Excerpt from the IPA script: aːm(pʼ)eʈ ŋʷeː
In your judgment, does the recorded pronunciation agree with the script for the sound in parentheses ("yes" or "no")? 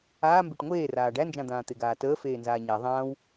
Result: no